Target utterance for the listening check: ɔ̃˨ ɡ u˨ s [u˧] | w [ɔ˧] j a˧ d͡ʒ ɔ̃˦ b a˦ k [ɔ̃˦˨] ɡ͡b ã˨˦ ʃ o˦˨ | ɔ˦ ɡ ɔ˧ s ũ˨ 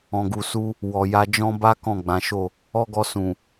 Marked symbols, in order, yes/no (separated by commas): yes, no, yes